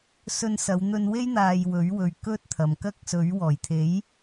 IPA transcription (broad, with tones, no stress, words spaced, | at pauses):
sɵ˧nsɐ˨˧wn̪ɵ˧nwe˥j n̪aː˧jwɵ˨˥ɥ wɵ˨ɥ kɵ˥t̚t̪ʰɐ˨m kɐ˥k̚sɵ˨˥ɥ wɔː˨˩jt̪ʰe˨˥j